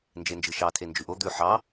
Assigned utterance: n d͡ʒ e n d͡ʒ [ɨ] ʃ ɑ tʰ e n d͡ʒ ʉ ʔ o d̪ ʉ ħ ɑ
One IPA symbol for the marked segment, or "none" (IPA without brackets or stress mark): ɨ